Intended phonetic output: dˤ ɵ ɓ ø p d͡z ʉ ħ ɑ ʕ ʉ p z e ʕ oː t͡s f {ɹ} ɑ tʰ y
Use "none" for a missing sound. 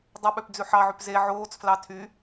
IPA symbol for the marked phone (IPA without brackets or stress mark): l